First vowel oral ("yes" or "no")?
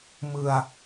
yes